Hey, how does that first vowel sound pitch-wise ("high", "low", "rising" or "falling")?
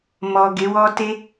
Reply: low